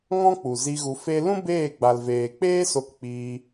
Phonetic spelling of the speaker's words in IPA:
ŋɔ̃˦k͡pu˨zi˧ ɣu˧ fe˧lũ˦ beː˦˨ɡ͡ba˨lveː˨ k͡peː˦so˧kk͡piː˧

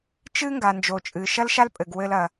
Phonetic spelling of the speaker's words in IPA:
t͡ʃɨ˥ŋɡa˩ nd͡ʒo˩t͡ʃʼɨ˩ ʃɐ˥lʃa˥lpʼɘ˩ɡ wɘ˧lɐ˩

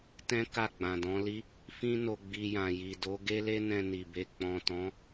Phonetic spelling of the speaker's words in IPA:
tɛ̃˦ ka˦˨ɡ͡bã˨dɔ̃˨˦li˦ | fĩ˦no˧ ɡ͡bi˧jã˨ji˨do˨˦ ɡe˦le˦nɛ̃˧ ni˨be˧ k͡pɔ̃˨tɔ̃˨˦

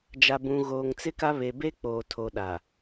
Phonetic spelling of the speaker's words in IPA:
d͡ʒa˨bũ˨ɣoː˨ŋ t͡sɪ˦ka˦ βe˨be˦k͡poː˨ tʰo˨ɗa˨

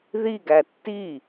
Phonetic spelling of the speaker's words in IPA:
ðiɡæ tːi

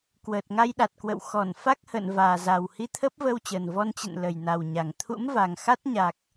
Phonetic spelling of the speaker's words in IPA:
kwəː˨˩t̚ŋa˧jɗa˨˩t̚kwə̰˧˨w xɔ˧˩nfa˦˥k̚hə̰ː˧˨n vaː˨˩za˨˩w hi˧t̪ʰəː˦˥p̚vəː˧wt͡ɕəː˨˩n vɔ˧nt͡ɕə̰˧˨n lə˨˩jna˨˩wɲa˨˩ŋ t̪ʰṵ˧˥mva˨˩ŋxa˦˥t̚ɲa˨˩k̚

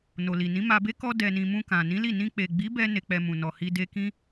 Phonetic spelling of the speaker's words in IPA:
no˨li˨ nĩ˨˦ma˧be˦ kɔ˧ dɛ˨nĩ˨ mũ˧ kã˨ nĩ˨˦li˦˨ nĩ˧k͡pe˨ɡ͡bi˨˦bɛ˧ ne˨k͡pɛ˨ mũ˨nɔ˨hi˧ de˧kĩ˦

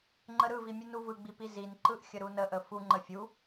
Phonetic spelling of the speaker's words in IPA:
ŋ͡ǃəɾɯvi mʲɯnuvɯɡ͡bi pizinǃɯʔ xʲəɾunəʔə fuŋ͡ǃə fʲu

